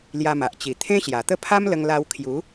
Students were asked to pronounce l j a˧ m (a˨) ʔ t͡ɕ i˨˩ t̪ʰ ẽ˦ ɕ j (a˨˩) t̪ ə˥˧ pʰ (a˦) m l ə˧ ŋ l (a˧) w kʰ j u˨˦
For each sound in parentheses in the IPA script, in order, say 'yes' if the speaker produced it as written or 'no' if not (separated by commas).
yes, yes, yes, yes